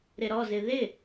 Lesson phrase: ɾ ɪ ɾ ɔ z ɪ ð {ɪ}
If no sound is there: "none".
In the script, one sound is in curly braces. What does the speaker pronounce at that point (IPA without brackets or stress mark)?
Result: ɪ